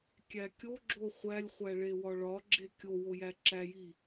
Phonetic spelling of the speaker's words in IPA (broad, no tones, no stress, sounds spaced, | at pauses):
kʲ æ kʲ o ɡ͡ǁ o χʷ æ lʲ χʷ æ ɭ e w ɒ ɭ ɒ ɡ͡ǁ e kʲ o w o j æ ǁ æ j i